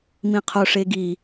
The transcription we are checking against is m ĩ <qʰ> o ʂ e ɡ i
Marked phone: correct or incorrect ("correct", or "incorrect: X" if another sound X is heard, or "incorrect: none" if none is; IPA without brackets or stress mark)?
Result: correct